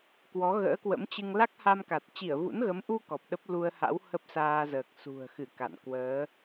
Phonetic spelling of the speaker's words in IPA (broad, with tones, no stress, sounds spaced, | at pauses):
k w ɔ˨˦ ɣ ə̰ː˧˥ k w ə̰˧˥ m t͡ɕ ɨ˧ ŋ l a˦˥ k̚ h a˧ m k a˨˩ t̚ t͡ɕ i˧˩ ə̯ v ṵ˧˥ n ɣ ə˨˦ m ʔ u˧ k ɔ˨˩ p̚ ɗ ə˦˥ p̚ l u˧ ə̯ h a̰˧˥ w h ə˦˥ p̚ s aː˧ z əː˨˩ k̚ s ṳ˨˩ ə̯ x ɨ˧˩ k a̰˧˨ n k w əː˨˦